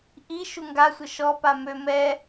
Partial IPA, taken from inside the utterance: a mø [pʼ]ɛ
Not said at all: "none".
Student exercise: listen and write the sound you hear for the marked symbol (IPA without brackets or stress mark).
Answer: m